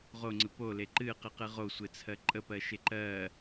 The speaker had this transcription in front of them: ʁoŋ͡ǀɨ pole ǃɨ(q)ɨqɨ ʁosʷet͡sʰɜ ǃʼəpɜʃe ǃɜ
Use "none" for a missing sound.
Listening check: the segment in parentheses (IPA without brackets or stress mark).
q